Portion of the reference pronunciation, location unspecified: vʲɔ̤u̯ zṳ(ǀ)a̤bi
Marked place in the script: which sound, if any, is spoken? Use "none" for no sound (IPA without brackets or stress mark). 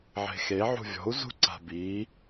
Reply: ǀ